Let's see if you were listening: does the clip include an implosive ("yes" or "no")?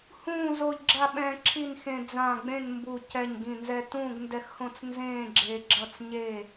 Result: yes